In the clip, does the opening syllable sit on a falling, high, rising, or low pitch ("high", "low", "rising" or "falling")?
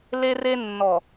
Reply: high